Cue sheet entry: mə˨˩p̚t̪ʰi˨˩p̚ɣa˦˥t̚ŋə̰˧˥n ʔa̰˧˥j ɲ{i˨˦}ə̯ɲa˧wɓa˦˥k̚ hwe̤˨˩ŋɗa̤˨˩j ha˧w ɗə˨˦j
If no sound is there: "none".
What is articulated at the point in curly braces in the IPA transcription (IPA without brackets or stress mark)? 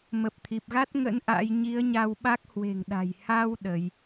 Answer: i˨˦